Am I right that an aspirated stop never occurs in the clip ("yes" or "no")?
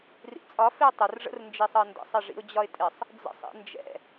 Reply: yes